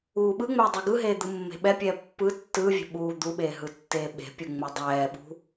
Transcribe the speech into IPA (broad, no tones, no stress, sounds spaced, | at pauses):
uː ɓ ɯ ŋ͡m ɛː dˤ u ɡ ɯ ɦ eː d̪ ɯ mː e̤ ɓ ɛ pʲ ɛː pː ɯ tː ɯː vʲ ɛ̤ ɓ uː d̪ u ɓ eː ɦ ɯ tː eː ɓ e̤ pʲ u ŋ͡m u dˤ ɛː ɓ ṳ